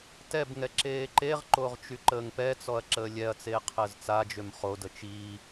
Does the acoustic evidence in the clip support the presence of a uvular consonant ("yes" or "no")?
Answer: yes